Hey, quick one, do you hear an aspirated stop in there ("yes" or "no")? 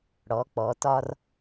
no